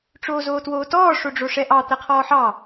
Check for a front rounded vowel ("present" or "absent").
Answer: absent